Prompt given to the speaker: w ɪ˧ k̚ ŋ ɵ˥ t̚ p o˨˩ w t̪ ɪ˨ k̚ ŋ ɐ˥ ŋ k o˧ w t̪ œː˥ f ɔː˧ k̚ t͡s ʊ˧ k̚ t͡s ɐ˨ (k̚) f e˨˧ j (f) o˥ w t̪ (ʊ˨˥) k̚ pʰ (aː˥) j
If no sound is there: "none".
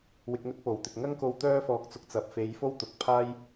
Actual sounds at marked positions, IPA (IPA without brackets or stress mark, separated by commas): p̚, f, ʊ˨˥, aː˥